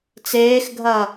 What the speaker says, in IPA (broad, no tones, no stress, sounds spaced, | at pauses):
t͡s eː x ɡʱ ɐː